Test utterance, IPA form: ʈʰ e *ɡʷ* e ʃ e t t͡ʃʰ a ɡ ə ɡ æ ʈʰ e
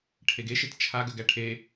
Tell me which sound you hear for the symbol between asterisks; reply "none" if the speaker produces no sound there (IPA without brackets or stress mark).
ɡ